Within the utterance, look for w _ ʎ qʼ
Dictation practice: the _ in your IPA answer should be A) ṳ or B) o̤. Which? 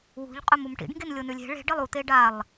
A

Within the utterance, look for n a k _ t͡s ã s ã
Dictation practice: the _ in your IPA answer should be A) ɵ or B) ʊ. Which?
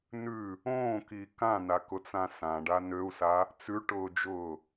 B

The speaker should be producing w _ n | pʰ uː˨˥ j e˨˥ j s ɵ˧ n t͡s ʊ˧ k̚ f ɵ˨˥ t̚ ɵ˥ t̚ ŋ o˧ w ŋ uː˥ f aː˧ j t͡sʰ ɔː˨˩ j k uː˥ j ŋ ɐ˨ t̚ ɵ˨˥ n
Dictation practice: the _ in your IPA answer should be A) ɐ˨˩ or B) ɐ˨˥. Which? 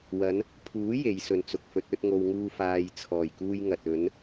B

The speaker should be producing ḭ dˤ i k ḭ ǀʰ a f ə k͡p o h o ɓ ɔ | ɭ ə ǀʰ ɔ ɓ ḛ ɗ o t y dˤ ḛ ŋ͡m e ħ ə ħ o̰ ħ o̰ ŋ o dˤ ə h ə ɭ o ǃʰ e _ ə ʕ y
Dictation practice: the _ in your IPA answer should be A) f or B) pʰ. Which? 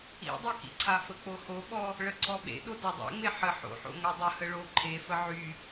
A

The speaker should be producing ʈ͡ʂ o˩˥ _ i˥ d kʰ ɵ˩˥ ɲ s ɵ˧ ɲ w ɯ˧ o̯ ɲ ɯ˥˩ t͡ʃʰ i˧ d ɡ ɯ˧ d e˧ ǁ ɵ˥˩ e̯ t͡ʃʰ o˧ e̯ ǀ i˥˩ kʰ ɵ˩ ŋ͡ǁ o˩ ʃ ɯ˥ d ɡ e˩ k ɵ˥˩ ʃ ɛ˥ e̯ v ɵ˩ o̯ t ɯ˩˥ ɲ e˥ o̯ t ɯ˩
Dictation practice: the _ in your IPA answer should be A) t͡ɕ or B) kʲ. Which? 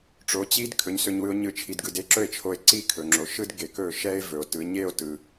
A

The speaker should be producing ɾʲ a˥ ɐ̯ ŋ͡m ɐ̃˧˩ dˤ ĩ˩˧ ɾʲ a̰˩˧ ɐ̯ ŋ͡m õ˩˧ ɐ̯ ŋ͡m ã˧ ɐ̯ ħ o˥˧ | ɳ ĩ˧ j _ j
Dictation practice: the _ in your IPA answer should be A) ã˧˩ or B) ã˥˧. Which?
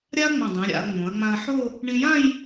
B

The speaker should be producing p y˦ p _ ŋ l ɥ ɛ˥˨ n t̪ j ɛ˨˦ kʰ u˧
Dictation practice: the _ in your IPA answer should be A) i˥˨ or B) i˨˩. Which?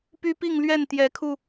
A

